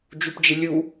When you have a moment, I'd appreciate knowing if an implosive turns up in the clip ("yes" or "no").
no